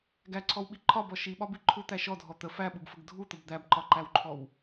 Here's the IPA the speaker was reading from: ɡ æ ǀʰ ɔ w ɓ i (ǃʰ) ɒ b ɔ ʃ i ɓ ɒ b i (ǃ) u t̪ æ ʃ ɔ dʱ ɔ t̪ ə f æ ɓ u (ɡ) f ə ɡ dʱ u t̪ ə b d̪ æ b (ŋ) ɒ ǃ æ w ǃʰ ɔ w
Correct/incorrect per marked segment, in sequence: correct, incorrect, correct, incorrect

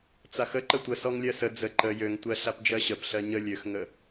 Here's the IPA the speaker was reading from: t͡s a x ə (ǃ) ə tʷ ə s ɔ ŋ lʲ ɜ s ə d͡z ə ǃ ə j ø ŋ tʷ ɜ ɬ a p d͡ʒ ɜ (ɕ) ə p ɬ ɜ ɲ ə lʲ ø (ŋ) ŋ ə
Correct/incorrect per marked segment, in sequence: correct, correct, incorrect

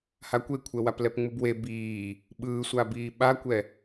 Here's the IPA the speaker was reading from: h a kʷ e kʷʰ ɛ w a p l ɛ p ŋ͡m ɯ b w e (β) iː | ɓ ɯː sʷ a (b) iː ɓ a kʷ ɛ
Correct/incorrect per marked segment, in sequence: incorrect, correct

